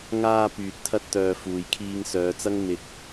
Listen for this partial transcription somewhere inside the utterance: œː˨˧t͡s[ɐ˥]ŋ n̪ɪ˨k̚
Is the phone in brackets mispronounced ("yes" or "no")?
no